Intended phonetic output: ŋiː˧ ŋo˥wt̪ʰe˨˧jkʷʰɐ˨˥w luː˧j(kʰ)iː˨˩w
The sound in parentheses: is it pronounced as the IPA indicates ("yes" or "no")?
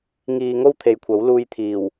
no